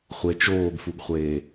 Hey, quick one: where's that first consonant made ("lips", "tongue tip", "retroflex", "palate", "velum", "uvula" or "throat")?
uvula